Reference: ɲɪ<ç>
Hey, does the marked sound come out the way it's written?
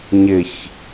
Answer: yes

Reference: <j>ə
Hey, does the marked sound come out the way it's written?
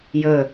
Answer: yes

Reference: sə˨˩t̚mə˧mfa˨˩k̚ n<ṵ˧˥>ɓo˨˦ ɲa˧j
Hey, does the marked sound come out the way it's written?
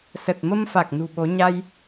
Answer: no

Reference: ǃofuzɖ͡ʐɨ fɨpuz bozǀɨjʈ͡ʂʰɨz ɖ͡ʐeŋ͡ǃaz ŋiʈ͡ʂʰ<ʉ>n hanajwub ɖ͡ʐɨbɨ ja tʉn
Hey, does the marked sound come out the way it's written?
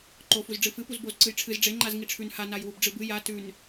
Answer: yes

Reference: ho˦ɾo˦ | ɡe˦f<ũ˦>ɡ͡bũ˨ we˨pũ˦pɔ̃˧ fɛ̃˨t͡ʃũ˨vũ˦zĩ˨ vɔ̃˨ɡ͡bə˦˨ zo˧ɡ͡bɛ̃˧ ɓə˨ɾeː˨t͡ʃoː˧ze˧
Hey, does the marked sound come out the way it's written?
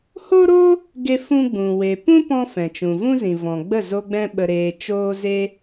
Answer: yes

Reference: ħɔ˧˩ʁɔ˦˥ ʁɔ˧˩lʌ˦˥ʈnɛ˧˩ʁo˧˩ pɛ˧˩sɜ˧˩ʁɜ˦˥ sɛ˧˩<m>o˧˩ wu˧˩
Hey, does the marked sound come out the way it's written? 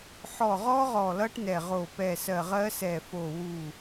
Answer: no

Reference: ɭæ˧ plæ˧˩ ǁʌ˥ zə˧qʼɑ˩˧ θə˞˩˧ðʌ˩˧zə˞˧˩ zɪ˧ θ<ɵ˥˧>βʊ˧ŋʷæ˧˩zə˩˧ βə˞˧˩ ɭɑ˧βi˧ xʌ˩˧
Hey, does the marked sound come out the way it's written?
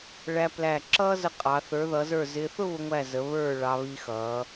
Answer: no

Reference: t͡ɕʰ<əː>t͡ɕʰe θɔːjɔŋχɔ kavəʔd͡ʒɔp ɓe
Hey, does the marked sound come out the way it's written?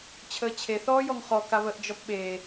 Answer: yes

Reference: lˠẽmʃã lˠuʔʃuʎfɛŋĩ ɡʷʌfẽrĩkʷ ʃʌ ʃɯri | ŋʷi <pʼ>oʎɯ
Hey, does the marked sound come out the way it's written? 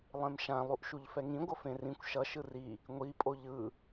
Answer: yes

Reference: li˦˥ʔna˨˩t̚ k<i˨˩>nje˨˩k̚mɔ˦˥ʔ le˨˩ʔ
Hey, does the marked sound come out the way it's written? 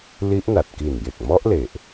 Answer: yes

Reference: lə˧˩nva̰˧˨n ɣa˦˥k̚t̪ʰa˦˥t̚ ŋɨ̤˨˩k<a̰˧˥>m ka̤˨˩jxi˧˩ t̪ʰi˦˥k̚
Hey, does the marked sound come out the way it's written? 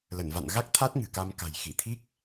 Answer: no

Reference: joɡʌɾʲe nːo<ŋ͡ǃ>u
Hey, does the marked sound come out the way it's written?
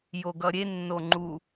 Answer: yes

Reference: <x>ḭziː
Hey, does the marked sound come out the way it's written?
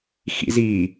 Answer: yes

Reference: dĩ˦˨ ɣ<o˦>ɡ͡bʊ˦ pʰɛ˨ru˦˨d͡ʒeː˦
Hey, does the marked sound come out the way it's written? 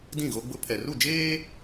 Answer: yes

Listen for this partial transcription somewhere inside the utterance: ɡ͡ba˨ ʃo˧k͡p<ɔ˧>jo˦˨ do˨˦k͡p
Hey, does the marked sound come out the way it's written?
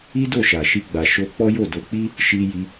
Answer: no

